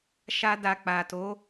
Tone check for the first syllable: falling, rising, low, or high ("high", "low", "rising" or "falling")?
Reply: high